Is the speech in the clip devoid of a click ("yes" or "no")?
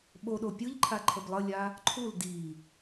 no